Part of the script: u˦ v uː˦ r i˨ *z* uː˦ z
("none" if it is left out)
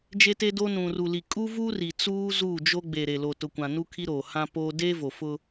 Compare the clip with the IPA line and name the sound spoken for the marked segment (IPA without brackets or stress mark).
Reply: t͡s